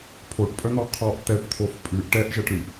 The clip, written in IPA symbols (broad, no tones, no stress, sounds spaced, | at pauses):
pʰ o ʈ pʼ œ n̪ ɔ qʰ ɔ ʔ t̪ ɛ ʈ t̪ʰ o f pʼ ʉ ʔ ʈ ɛ ʔ ʒ ɛ ʈ ɾ ʉ ʔ